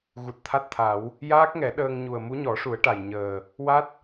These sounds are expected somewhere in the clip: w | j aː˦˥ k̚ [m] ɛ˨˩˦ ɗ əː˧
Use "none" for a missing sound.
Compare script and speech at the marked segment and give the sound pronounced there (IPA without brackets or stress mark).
ŋ